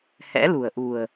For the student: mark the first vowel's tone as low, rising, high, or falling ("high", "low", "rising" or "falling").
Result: rising